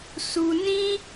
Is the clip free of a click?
yes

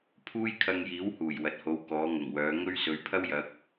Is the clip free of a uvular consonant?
yes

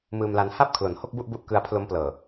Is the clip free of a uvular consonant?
yes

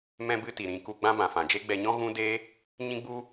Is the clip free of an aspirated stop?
yes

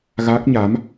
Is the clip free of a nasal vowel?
yes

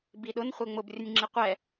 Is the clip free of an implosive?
no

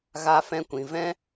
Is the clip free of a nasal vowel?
no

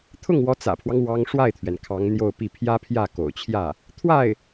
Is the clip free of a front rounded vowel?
yes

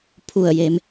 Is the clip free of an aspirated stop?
no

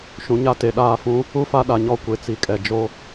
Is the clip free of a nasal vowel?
no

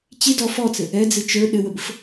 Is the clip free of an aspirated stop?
yes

